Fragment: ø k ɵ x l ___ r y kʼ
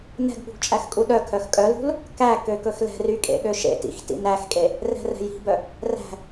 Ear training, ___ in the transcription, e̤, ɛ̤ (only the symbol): ɛ̤